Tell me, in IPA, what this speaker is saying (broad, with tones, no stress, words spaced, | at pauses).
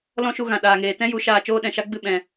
lɔ̃˦ʃu˧ ɣã˨ ɗaː˨ŋeː˨ tɛ̃˦ju˨˦ ʃaː˨ t͡ʃoː˦ɗɛ̃˨ʃa˦ɡ͡bɨ˦˨ ɓɛ̃˨